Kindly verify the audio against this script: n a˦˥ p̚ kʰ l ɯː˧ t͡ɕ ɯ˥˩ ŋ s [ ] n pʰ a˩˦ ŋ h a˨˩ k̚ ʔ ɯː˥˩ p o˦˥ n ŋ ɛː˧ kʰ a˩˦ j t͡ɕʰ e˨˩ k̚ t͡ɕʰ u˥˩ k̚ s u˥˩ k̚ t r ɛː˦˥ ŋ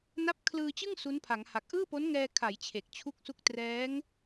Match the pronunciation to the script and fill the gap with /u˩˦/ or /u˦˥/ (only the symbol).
u˦˥